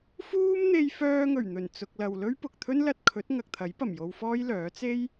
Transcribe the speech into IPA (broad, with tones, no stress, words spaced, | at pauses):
fuː˥mn̪e˧j fœː˧ŋɵ˨˩ɥn̪ɵ˨˩n t͡sʊ˨k̚lɐ˨wlɵ˥ɥ pʊ˨k̚t̪ʰɵ˥nlɐ˧t̚ kʰɵ˨˥t̚ ŋɐ˨k̚t̪ʰɐ˨˥jpɐ˨˩m jo˧wfɔː˥jlœː˨˥ t͡se˥j